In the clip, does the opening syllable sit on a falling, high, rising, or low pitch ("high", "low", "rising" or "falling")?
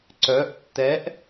rising